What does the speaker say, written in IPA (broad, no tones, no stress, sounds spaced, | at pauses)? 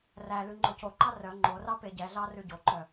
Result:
r æ l ʉ ŋ͡ǃ o c o ǃ ɑ r œ ŋ͡ǃ o r ɑ p e ɟ ɛ ɮ ɑ r ʉ ɟ o ǃ œ